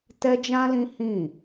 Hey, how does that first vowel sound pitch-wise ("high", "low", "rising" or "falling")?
high